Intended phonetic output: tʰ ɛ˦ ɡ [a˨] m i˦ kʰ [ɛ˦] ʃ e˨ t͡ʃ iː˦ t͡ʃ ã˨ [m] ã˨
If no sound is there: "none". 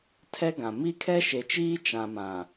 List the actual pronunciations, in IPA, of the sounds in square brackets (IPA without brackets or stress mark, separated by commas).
ã˨, ɛ˦, m